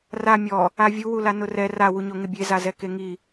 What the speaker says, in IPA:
r a mʲ ɔ | a vʲ u w u l a n ʊ r ɛ r a w u ɲ o ŋ ɪ bʲ e z a z ɛ k e ŋ i

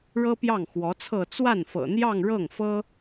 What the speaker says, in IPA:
ɻ ɤ˥ p j ɑ˥˩ ŋ x w ɔ˧˥ t͡sʰ ɤ˥˧ t͡s w a˥˩ n f ɤ̰˨˩ n̪ j ɑ˥˧ ŋ ɻ ɤ˥˩ ŋ f ɤ˥

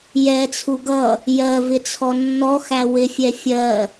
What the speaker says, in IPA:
j ɛ t͡sʰ u ɡ ʌ | j ɜ v ɪ t͡sʰ ɔ nː ɔ x æ w ɪ fʲ ɛ fʲ ɜ

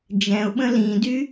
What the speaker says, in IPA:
d͡ʒ ɛ̃ ʊ̯ ɓ ə̃ l ĩ d y

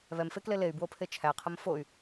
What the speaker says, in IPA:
β ɛ m f e k l e l e y̯ b w o pʰ e t͡ʃʰ æ qʰ ə m f o y̯

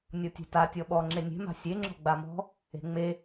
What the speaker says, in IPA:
nʲ ɔ tʲ e̤ t a tʲ ɔ ɓ ɔ ŋ͡ǁ e nʲ e̤ m a̤ sʲ e ŋ͡ǁ ɔ̤ ɡ͡b a m ɔ̤ | e̤ ŋ͡m e

